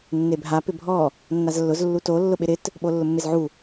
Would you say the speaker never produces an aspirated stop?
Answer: yes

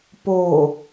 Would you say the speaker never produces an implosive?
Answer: yes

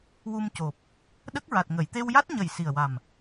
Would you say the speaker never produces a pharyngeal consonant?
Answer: yes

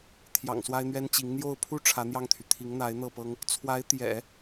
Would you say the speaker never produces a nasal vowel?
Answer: yes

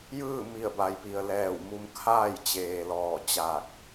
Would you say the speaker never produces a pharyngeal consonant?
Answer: yes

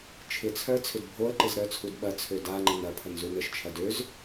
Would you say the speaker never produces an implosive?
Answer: no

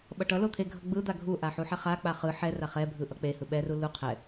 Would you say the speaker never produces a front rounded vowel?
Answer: yes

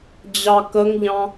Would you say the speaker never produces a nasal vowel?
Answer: no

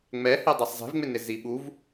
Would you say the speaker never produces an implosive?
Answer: no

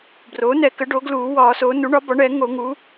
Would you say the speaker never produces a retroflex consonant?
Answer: no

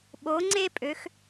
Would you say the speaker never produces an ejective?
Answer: no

